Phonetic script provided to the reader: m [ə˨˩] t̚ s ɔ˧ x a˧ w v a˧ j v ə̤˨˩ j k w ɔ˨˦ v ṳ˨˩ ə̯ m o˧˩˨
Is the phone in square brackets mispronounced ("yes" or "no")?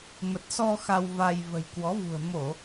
no